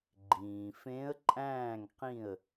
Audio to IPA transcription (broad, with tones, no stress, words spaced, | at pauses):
ɡ͡ǃĩː˩fẽ˧˥ə̯ ǃʼæ̃ː˥˨ŋqĩ˥˨ə̯